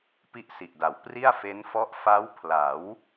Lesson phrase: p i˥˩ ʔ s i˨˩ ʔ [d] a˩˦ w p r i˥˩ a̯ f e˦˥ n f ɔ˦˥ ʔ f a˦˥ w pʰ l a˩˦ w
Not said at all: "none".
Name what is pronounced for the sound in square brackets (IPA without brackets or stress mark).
d